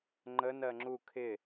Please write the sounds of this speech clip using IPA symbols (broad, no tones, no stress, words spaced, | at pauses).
ŋ͡ǃənɜ ŋ͡ǁu kʰɪ